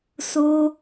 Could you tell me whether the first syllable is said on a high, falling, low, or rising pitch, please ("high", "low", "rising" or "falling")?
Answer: high